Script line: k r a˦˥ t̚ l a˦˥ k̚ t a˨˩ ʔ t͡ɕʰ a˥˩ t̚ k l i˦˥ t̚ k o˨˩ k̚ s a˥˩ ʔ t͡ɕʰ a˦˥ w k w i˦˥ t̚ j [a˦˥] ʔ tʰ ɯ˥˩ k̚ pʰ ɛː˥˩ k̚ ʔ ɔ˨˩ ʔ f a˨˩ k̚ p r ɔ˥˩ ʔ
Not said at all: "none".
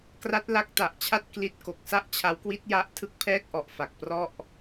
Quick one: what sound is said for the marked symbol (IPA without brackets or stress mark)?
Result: a˦˥